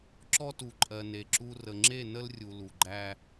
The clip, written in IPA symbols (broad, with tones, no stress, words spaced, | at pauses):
ǁɔ˦tu˨ǃʼɜ˨ ne˨ǁu˦ rə˨ŋ͡ǁe˦˨nə˦lrʲu˨ lu˨ɡ͡ǃæ˦